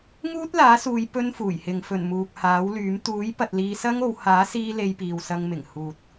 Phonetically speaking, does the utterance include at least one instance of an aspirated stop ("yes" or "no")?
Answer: no